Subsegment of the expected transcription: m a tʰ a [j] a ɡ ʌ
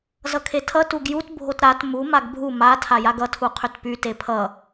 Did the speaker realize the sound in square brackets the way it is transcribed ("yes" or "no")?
yes